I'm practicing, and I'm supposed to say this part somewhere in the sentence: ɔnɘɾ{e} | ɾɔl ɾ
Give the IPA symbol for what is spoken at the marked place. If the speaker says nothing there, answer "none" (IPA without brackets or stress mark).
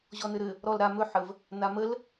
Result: ɘ